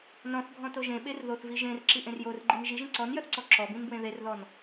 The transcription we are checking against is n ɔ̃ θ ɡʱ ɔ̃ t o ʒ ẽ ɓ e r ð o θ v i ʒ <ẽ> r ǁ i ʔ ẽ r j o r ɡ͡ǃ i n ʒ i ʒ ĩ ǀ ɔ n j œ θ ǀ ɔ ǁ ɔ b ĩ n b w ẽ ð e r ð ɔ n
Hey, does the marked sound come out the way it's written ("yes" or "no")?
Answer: yes